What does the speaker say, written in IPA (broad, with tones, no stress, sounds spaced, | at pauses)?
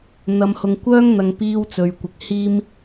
n̪ ɐ˧ m h ʊ˧ ŋ kʷ œː˥ ŋ n̪ ɐ˧ ŋ p iː˥ w t͡s ɵ˧ ɥ kʷ ɪ˧ k̚ h iː˥ m